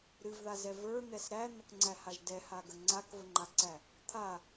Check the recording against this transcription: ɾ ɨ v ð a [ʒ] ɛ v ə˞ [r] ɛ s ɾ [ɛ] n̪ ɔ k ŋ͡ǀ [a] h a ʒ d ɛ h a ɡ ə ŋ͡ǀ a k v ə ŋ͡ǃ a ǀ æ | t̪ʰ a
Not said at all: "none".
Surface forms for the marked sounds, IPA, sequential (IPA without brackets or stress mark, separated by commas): z, n̪, æ, æ